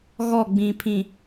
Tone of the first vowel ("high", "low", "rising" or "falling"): falling